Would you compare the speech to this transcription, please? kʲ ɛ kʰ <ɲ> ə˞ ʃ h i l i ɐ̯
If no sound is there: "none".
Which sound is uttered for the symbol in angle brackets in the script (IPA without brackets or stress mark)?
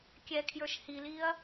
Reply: j